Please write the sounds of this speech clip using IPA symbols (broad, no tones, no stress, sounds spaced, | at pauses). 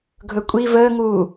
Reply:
ɡʱ ɵ kʷʼ i v əː ŋ uː